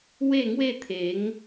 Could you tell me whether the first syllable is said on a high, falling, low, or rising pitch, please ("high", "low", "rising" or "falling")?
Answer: falling